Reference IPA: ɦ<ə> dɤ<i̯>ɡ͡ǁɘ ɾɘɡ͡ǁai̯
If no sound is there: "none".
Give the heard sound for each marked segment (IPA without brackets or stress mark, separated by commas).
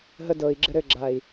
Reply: ə, i̯